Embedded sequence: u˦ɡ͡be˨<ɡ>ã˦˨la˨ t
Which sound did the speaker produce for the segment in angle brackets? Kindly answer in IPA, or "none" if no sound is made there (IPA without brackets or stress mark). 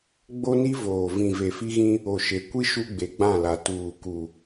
ɡ͡b